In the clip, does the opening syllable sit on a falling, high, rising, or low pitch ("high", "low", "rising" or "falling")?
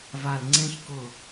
low